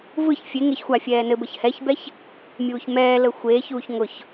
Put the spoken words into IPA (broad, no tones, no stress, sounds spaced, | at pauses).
v ɯ ç fʲ e ŋ e ç xʷ a fʲ ɛː n ɘ b ə ç h ɛ ç b ɛ ç | mʲ uː ç m ɛː l ə xʷ eː ç uː ç ŋ ʊ ç